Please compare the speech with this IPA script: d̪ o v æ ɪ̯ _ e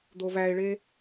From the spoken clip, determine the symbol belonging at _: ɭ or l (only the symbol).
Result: ɭ